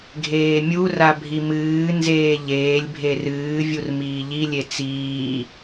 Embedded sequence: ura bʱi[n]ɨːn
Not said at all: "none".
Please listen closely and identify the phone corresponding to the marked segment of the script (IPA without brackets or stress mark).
m